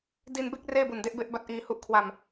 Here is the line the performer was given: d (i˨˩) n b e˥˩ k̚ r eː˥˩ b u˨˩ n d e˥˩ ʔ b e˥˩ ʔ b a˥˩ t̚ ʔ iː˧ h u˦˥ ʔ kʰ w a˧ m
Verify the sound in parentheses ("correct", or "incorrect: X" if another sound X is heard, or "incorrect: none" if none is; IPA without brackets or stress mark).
incorrect: i˧